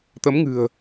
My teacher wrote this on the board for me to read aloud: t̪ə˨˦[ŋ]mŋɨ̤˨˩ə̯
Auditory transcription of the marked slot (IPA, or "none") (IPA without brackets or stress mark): none